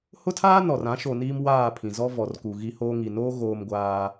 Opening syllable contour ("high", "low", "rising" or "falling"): high